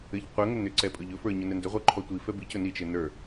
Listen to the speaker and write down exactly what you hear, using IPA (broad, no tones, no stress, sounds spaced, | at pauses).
ɘ ʎ qʷ ə ŋ ɵ n ʏ ǀ ɛ pʼ ɵ ʎ ɵ f ə˞ ɲ ɵ n ɛ n d ʏ ʁʷ ə˞ ǃʰ ɔ tʷ i f ɛ b i c ɵ n i t͡ʃ ɘ n ə˞